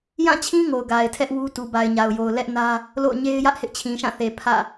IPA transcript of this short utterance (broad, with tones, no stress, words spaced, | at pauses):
jã˦˨t͡ɕʰĩ˦ ŋo˨ʊ̯ɡa˨ɪ̯tʰɛ˦ʔ wu˦ tu˨ba˨ɪ̯ɲa˨ʊ̯jo˨ʊ̯ lɛ˦ʔnä˦ | lo̰˦˨ʊ̯ɲe˦ɪ̯jä˦ʔ hɪ˦ʔt͡ɕʰĩ˨ʃã˦˨θe˨ pʰä̰˦˨